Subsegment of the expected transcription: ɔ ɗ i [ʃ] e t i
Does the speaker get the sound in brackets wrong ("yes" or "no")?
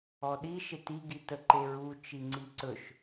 no